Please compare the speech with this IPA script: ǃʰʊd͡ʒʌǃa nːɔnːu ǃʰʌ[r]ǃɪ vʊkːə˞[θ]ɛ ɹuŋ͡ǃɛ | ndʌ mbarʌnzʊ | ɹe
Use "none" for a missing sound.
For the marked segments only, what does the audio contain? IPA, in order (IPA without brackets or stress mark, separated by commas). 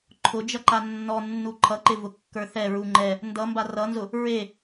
none, θ